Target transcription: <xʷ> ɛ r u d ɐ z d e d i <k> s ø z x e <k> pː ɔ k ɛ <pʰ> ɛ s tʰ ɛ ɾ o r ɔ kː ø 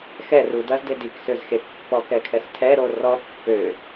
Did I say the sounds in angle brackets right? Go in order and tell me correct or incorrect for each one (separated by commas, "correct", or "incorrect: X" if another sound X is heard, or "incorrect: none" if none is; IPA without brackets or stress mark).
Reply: incorrect: x, correct, correct, incorrect: kʰ